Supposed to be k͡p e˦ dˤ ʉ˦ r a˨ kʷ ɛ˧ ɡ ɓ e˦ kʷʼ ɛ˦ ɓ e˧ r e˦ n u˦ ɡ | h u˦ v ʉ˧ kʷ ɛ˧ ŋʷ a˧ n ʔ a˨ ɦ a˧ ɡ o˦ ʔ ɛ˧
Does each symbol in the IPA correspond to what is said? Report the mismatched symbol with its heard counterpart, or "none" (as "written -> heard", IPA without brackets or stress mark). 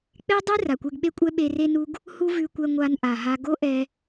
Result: none